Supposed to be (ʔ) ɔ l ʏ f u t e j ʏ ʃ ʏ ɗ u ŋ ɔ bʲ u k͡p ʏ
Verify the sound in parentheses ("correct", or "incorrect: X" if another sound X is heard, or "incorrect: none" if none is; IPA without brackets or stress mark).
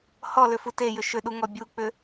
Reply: incorrect: h